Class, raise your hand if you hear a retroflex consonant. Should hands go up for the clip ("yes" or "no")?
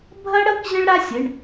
yes